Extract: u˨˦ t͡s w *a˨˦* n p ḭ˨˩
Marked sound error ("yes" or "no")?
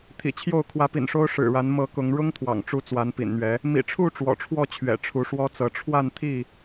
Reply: no